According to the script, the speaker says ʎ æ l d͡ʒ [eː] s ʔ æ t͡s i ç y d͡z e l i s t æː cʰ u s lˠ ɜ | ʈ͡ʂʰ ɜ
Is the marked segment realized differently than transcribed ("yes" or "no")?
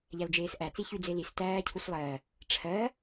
no